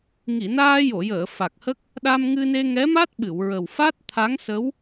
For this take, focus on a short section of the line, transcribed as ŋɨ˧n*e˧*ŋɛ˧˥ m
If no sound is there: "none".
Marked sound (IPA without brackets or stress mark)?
e˧